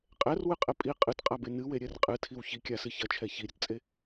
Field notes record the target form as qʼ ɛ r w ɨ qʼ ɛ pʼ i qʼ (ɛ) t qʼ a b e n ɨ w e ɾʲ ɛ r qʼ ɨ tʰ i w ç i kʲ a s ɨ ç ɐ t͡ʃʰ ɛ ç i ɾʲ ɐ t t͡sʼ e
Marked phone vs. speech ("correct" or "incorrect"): incorrect